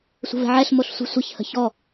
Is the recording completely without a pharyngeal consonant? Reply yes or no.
no